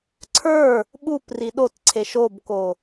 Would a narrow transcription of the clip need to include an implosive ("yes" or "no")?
yes